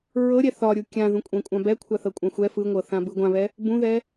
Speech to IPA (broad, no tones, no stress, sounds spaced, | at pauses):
ɹ ɤ ɾʲ ɛ θ ɒ ɾʲ u kʲ ã ð ũ kʷʼ ɛ̃ kʷʼ ã b ɛ kʷʰ a θ ɤ kʷʼ ã xʷ ɛ f ɯ ŋʷ ɤ θ ã b ɯ ɡʷ ã β ɛ | b ũ ð ɛ